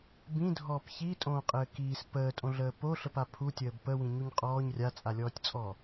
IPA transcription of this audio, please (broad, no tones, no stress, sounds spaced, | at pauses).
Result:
b ĩ dʱ ɔː p ç i tʼ õː qʼ ɘː k iː s p əː tʼ õ ɮ əː p o ɬ ə p a pʰ u tʲ əː b p ə w ĩ ɲ u ɲ qʼ ɔː ɲ rʲ a t͡sʼ a lʲ ɔː tʲ t͡sʼ ɔ